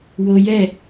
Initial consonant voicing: voiced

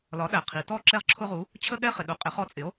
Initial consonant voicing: voiced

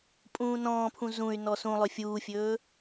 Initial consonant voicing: voiceless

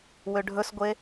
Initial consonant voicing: voiced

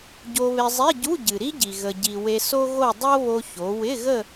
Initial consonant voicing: voiced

